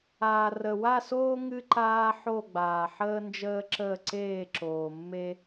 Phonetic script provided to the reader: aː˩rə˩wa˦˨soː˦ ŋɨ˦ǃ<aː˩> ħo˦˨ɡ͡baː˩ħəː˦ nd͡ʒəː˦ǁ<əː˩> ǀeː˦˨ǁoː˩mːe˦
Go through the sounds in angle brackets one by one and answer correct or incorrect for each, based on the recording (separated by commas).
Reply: incorrect, incorrect